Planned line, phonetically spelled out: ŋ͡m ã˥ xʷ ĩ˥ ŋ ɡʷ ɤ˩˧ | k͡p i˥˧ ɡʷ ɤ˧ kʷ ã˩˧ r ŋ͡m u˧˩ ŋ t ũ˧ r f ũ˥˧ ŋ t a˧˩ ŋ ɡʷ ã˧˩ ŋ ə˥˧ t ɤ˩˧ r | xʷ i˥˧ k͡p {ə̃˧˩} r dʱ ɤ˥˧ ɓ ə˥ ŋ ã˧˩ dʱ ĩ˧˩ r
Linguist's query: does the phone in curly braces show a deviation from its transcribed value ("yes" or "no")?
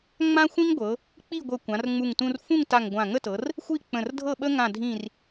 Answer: no